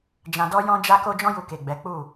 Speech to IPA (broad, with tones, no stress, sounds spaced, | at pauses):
d͡ʒ ã˧ d ɔ˦ j ɔ̃˧ d͡ʒ a˧ k o˧ d͡ʒ ɔ̃˦ j u˧ k e˨ ɡ͡b ɛ˨˦ k͡p u˦˨